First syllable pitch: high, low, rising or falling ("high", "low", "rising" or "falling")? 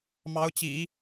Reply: rising